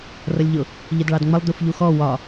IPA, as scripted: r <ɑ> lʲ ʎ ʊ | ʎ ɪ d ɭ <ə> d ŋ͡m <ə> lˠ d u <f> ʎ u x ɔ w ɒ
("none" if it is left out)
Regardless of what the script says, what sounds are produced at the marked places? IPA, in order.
ʌ, ɑ, ə, f

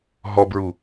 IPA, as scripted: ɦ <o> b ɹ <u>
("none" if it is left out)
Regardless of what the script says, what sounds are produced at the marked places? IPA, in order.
ɔ, u

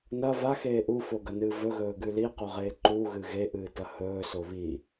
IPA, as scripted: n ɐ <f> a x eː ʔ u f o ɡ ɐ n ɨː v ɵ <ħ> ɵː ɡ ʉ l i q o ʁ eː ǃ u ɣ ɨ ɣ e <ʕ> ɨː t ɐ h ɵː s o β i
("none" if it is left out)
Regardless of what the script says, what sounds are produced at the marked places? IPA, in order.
v, ɣ, ʔ

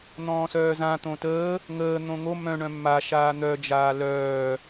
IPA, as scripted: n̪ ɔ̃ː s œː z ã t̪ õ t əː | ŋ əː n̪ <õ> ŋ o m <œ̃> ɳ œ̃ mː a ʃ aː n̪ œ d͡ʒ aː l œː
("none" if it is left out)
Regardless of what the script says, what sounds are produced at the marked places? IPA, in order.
õ, œ̃

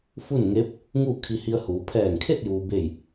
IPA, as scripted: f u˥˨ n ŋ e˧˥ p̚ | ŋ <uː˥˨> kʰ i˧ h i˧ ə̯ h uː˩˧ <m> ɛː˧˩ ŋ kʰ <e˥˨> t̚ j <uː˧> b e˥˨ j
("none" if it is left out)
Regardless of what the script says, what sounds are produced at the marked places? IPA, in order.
uː˥˨, pʰ, e˥˨, uː˧

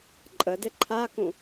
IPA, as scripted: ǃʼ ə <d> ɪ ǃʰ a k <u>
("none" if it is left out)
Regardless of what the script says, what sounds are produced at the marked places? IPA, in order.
d, ũ

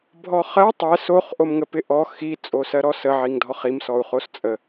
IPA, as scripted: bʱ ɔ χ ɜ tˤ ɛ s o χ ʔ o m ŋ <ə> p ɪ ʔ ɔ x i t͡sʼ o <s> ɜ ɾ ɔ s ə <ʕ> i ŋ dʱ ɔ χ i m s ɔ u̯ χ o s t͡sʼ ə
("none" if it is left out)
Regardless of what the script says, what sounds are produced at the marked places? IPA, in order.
ə, s, ʕ

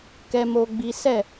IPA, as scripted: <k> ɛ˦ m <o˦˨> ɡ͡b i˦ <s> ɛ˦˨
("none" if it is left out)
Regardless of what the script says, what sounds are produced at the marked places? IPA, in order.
k, o˦, s

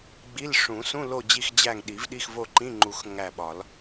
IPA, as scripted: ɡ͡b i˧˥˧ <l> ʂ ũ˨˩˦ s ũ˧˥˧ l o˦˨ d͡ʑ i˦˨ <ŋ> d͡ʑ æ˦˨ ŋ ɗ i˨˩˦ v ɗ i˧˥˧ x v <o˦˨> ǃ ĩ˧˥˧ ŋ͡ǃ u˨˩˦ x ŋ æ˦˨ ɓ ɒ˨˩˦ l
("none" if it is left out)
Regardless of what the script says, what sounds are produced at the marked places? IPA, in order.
l, x, o˦˨

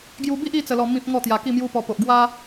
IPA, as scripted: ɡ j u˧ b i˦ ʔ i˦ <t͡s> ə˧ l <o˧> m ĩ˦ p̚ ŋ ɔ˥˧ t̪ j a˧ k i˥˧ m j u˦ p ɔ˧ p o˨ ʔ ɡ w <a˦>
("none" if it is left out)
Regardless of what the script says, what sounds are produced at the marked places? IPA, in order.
t͡s, ɔ˧, a˦

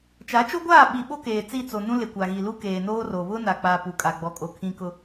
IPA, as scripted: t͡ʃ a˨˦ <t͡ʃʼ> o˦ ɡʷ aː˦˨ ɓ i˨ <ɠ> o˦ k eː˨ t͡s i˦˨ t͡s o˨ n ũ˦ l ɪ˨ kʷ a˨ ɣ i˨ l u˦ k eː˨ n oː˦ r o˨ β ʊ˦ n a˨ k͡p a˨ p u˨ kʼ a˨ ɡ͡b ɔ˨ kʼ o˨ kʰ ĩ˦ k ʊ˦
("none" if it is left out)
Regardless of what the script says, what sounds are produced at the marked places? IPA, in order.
t͡ʃ, ɓ

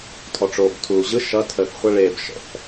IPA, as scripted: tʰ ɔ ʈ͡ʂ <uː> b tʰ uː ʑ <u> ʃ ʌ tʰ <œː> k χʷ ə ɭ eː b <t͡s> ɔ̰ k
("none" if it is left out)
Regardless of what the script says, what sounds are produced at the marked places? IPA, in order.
oː, ɯ, əː, ʃ

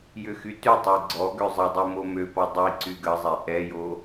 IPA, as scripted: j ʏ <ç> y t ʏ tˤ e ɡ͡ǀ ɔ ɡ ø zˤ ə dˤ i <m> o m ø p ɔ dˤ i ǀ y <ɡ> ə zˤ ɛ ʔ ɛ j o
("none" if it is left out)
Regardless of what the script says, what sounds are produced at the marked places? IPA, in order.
x, m, ɡ

